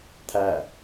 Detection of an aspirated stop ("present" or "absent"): present